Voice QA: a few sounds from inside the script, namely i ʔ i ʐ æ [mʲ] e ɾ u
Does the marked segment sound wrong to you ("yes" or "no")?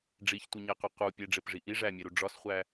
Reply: no